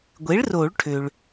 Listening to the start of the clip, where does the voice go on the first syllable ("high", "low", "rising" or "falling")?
rising